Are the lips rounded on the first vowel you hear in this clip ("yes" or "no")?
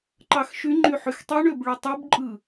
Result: no